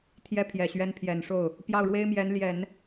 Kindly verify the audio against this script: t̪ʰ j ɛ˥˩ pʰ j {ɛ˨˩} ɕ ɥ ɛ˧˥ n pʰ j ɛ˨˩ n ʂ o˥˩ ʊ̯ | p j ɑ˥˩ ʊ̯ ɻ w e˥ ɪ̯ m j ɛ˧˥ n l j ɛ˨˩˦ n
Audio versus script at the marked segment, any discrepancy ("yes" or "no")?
no